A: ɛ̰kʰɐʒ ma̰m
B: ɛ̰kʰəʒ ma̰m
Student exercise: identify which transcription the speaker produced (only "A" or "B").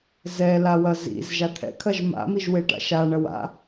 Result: A